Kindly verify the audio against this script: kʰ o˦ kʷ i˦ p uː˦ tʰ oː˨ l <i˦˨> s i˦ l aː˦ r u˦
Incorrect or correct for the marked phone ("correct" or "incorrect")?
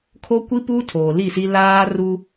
correct